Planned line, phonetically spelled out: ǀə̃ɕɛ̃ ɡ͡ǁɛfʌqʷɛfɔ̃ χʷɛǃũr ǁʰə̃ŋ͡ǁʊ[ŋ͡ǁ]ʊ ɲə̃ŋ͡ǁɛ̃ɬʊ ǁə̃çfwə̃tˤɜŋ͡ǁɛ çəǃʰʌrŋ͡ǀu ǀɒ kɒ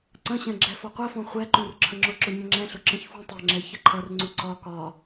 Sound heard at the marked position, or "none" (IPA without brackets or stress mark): ǁ